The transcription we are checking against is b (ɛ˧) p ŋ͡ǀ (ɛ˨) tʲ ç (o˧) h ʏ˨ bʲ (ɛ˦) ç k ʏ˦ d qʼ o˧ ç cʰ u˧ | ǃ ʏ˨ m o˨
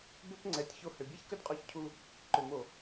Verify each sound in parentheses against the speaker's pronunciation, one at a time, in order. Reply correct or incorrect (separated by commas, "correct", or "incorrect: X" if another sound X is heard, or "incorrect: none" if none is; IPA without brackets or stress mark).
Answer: incorrect: ʏ˧, correct, correct, correct